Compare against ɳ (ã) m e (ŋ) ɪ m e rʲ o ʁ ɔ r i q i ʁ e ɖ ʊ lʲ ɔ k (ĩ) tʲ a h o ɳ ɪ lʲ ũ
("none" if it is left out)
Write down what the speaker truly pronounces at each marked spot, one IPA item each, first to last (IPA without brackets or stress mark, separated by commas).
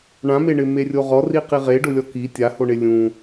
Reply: ã, ɳ, i